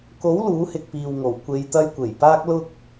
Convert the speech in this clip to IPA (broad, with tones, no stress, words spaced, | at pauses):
ko˨˥w luː˨˥hɪ˨k̚piː˨wŋo˨˩w kʷe˨˧jt̪ɐ˧jkʷe˨˩j paː˧k̚ lʊ˥k̚